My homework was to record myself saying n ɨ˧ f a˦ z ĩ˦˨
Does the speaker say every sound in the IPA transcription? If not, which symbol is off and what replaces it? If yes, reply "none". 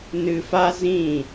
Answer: none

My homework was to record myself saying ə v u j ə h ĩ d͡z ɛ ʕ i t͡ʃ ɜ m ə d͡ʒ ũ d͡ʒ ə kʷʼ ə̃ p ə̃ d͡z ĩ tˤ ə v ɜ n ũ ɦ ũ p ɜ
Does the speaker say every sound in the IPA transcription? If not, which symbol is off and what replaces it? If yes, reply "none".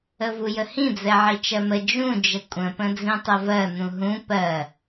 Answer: none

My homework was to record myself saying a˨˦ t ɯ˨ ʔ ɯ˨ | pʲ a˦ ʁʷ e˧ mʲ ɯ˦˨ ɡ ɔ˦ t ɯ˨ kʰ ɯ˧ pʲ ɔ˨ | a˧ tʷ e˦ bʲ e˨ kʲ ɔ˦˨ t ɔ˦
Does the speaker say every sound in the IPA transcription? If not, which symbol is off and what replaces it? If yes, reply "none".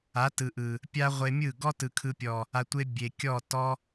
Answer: none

